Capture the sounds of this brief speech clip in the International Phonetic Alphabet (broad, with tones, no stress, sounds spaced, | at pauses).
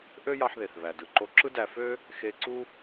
ʔ ø˥ j ɑ˧ ħ ð e˩ θ β æ˩ d ɯ˩ ǃ o˧ ǁ ɯ˥ d æ˧ f ø˥ | x e˧ ǀ u˥